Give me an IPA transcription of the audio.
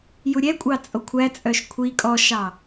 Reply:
j u ɾʲ ɛ kʷʼ ɑ t͡sʼ o kʷʰ æ t͡sʼ œ ʃ kʷʰ i kʼ ɔ ʃ ɑ

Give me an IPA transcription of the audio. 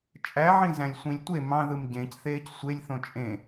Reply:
t͡ʃʼ æ ʕ ĩ z æ̃ lʲ sʷ ĩ lʲ tʷ e m ɑ̃ ð ɯ m ɟ ẽ c θ eː c sʷ e lʲ θ õ t͡ʃʼ ẽ

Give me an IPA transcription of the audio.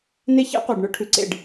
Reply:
n e˦ ç ɛ̰˦ qʷ ə˞˨ ɖ ɳ ɵ˦ ʈʰ ʉ˨ ǀ ḛ˦˨ ɖ

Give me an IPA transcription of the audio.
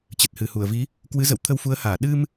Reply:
t͡ɕ ə˨˩ t̚ h ɨ˨˩ h u˧˩ ə̯ v i˨˦ | k w ɨ˨˦ z ə̰˧˨ w t̪ʰ ə˧ w f u˨˦ ə̯ h aː˧˩ ɗ ɨ˧ m

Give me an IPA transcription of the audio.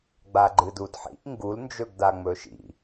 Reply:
ɡ͡b a ɡ͡ǃ ɨ d u d ħ ḭ ʔ ŋ ɡ u l n d͡ʒ ɵ ɡ d a ŋ͡m ɵ ʃ ḭ

